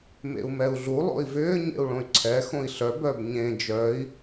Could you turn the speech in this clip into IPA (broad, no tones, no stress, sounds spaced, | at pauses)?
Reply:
m ḛ u̯ m ɛ u̯ ɮ u lˠ o̰ i̯ v ʏː ɲ ḛ u̯ ɭ õ y̯ ǀʰ ɛ x õ i̯ ɬ œ b œ b ɲ ẽ d͡ʒ œ i̯